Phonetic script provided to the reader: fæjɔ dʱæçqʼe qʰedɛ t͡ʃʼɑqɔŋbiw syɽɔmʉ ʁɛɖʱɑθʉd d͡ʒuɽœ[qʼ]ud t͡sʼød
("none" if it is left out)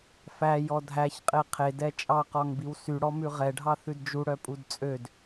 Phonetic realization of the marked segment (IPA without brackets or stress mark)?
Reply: pʼ